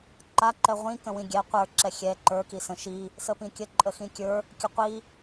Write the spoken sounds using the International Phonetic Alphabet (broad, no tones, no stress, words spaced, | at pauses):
ǃa ǃɛʁʷĩ kə̃wĩɡʲɛ qʷə˞ ǁɛxʲɛ ǃə˞ kisə̃ʃi | səpĩkʲə ǃʼəxĩkʲə˞ | kʲəqʷi